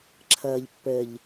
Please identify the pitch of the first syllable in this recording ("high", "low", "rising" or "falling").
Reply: low